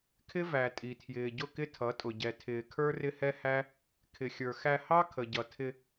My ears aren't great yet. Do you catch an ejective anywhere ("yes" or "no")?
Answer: yes